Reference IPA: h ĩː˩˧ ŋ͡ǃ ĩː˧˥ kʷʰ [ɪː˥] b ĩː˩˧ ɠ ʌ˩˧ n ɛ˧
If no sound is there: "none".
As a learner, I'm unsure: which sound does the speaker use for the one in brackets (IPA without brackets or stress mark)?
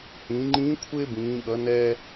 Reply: ɪː˥